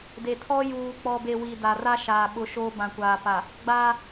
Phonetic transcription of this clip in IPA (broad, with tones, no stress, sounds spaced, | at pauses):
d e˨ tʰ ɔ˦ j uː˨ k͡p ɔ˨ b e˨ w i˨ d a˨ r a˦ ʃ aː˨ ɓ ʊ˨˦ ʃ oː˦ b ã˨ kʷ aː˨ p a˨ | ɡ͡b a˦